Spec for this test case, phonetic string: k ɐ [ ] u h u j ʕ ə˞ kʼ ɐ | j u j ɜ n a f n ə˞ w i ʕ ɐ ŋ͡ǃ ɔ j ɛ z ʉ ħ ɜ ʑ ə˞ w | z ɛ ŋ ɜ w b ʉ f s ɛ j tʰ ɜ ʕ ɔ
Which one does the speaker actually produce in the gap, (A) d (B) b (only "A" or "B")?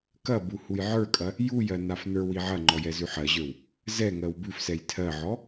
B